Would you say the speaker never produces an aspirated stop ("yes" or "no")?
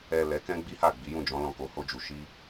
yes